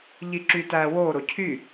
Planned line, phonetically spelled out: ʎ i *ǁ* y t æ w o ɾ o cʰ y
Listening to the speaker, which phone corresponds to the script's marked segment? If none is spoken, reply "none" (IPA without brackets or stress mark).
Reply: ǁ